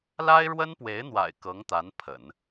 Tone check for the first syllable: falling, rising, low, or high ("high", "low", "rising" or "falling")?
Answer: high